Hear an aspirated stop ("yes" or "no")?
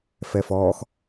no